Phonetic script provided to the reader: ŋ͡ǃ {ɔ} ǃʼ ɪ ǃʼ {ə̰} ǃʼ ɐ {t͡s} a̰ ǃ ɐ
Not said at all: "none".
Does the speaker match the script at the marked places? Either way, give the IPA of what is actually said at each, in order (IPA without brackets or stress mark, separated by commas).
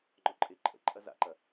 ɔ, ə̰, z